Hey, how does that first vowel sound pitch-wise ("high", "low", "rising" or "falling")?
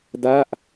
falling